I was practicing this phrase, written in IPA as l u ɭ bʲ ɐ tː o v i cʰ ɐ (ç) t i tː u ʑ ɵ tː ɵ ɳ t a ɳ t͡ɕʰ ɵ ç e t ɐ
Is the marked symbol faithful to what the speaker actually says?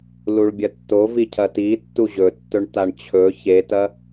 no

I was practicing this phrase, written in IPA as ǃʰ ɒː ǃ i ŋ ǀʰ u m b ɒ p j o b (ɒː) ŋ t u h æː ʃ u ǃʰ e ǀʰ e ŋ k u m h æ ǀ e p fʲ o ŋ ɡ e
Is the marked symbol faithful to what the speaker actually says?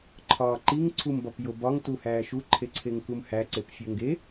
no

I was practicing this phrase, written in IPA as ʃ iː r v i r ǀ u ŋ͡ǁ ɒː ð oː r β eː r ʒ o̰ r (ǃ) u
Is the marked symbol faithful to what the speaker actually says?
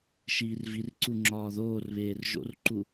yes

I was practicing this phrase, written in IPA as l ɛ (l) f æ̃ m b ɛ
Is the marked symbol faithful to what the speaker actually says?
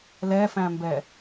no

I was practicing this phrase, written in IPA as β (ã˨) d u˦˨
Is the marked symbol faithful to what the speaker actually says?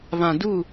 yes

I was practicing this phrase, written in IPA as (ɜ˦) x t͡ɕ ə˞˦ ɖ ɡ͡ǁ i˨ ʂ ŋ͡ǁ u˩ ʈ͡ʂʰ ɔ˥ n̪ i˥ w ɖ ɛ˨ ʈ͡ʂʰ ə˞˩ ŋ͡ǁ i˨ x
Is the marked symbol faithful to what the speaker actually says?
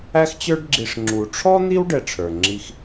no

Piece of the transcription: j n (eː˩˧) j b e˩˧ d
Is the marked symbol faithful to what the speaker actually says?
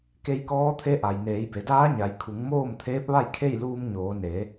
yes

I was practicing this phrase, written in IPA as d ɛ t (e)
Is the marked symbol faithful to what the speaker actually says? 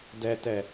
no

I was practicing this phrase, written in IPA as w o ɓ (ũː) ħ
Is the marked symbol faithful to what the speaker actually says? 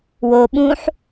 yes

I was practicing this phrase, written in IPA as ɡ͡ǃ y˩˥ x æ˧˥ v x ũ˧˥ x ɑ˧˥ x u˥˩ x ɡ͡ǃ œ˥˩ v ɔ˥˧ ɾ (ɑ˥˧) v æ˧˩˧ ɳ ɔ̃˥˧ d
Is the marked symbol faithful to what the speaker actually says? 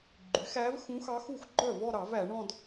no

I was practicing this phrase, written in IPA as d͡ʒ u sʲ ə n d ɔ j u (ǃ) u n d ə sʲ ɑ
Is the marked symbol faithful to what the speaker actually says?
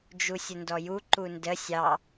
yes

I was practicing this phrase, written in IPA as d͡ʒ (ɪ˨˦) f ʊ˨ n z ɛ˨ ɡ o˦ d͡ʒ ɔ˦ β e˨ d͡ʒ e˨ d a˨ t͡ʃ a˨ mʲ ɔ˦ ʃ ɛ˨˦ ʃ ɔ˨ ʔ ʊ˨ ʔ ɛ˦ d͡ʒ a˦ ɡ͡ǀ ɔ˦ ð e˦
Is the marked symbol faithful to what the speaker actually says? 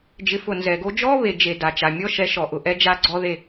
yes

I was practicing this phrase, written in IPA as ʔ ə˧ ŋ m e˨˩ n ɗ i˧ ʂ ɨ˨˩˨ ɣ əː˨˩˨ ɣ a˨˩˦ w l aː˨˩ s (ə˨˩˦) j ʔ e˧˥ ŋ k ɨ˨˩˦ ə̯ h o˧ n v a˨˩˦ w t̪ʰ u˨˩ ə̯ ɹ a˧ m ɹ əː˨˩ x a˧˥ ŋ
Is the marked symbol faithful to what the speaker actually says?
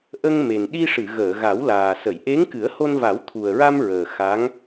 no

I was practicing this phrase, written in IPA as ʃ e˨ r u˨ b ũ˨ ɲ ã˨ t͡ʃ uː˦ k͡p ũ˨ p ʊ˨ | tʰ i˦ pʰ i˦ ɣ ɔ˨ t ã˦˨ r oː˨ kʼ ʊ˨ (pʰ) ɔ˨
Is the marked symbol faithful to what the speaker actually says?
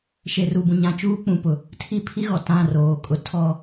no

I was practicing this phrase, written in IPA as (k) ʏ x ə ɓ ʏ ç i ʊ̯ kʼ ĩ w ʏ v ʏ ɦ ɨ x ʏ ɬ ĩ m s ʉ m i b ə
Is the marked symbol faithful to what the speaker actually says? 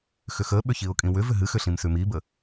no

